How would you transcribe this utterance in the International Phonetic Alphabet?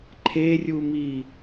ǃʰerʲumi

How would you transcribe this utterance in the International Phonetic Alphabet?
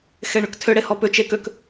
xeɳʏktʰʏ ɽehɔpʏ t͡ʃek ʏk

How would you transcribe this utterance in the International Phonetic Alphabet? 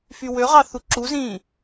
fywøʁɑ θuǁuzĩː

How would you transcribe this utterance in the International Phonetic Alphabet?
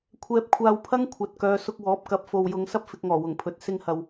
kʷʰɛː˧p̚kʷʰaː˧wpʰɐ˥ŋ kʷʰɐ˨t̚kœː˨˧ sʊ˧k̚wɔː˨˥p̚kɐ˨˥p̚ fo˨wjʊ˨˧ŋ sɐ˥p̚fɪ˧k̚ŋɔː˨˩ wʊ˨˩ŋpʰɵ˨˥t̚ sɪ˧ŋhɐ˨w

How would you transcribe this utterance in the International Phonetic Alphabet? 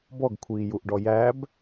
bɔɡkʷʰiːjuʔɖɔ jæb

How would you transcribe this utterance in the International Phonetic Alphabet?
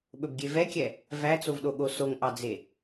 ɓɵbɡʲevɛkʲɛ | væt͡sovɗoɠo soŋʔɑd͡ze

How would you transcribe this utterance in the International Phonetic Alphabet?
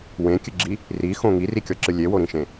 wẽkʲɨɡ͡ǁi | rixõ ŋirikʲɔǁɨ lʲewoɾĩʃẽ

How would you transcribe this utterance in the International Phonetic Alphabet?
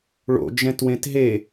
ɭo̰d͡ʒɛ̃twẽt ɦe

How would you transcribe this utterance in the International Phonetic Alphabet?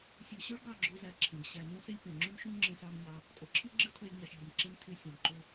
sʲɯ˨ɕø˦ɭ ɡɑ˦˨ɡ͡ǁo˧zæ˨ ǁʰẽ˨ɡ ɕæ˨ nũ˦se˦lʲpẽ˨ ŋ͡ǁy˦mʃũ˦ ŋ͡ǁẽ˧sɑ˧mɲɑ˧ | kʼo˨ǁʰi˦ ɡ͡ǁɯ˦tʰø˧lʲ ɲɑ˨ʃʎɯ˨mǁe˦m tʰy˧sʲẽ˨m ǃo˦

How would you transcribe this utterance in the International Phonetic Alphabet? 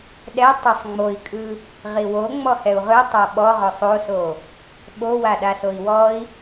ɗɛ tˤəsˤ ŋ͡moi̯kʼɯ | ʁiwo ŋ͡mɔhɛu̯ʁɯ tˤaɓɔʁɔsˤ oso | ɓowa ɗasoi̯wɔi̯

